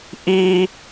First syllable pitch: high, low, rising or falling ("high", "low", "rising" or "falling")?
high